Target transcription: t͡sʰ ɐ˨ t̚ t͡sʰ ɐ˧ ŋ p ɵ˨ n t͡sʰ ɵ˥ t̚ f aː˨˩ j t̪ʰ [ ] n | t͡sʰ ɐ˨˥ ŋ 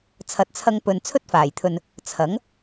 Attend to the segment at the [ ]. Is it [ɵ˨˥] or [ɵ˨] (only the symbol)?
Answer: ɵ˨